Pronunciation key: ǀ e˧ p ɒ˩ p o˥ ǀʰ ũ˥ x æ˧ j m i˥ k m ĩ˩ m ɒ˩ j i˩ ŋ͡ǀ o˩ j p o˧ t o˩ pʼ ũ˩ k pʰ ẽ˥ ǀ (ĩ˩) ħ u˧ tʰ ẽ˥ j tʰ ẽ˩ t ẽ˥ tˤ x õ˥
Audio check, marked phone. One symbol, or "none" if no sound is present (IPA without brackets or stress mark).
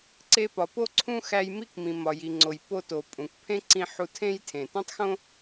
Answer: ĩ˧